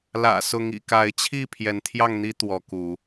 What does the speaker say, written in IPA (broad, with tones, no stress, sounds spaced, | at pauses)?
l ä̰˨˩ s ʊ˨˦ ŋ ḭ˨˩ k a˨˦ ɪ̯ t͡ɕʰ i˥˨ pʰ j ɛ˨˦ n t̪ʰ j ɑ˥˨ ŋ n̪ i˦ t̪ w ɔ˨˦ k u˨˦